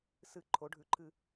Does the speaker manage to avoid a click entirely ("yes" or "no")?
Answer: no